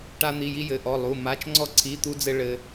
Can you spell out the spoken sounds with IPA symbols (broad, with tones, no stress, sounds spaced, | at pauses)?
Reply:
ʈ a˥ n̪ i˧˥˧ j i˥ j ɘ˧˥˧ ʔ ɔ˧˥˧ lˠ u˧˥˧ m a˧˥˧ t͡ʃ ŋ͡ǀ ɔ˥ ǀʰ i˧˥˧ t̪ u˥ d͡z ɘ˥ ɭ ɘ˥